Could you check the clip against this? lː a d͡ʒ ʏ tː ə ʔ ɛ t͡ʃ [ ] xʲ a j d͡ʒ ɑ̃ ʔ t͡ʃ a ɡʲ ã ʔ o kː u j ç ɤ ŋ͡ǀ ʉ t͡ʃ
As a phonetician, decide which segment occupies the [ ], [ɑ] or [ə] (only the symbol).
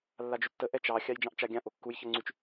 ɑ